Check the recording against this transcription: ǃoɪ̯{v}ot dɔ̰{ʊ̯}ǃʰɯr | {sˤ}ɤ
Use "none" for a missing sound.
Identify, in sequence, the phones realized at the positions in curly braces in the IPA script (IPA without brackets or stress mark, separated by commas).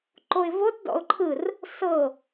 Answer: v, ʊ̯, s